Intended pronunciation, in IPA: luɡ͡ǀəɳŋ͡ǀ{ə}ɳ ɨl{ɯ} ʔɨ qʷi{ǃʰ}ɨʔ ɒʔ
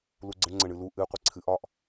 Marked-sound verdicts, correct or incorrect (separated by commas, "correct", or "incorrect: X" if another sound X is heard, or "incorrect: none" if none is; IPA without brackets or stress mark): correct, incorrect: u, incorrect: ǀʰ